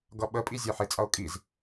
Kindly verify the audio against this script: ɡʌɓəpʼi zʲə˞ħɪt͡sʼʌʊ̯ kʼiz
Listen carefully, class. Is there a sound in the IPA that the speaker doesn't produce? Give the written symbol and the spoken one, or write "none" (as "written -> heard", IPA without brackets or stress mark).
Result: none